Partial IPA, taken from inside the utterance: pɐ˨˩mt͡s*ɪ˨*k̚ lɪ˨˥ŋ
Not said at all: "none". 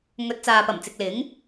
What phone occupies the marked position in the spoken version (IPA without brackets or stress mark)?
ɪ˨